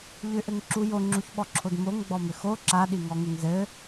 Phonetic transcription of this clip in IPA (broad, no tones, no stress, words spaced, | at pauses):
ʎʏʔɘŋǁu joŋ͡ǁuçɓɔǁʰod moŋɡ͡bɔmʏ xo ǁaɗiŋɔŋʏŋ zɘ